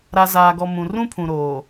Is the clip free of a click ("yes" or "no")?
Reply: yes